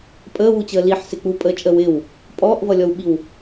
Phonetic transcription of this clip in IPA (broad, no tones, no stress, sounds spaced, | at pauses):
pʼ əː w u t͡ɕ əː l i ħ s ɪ k͡p u pʼ əː t͡ʃʼ əː w ɪ w | pʼ ɔː ʔ v ʌ lʲ ɔ w ɓ i w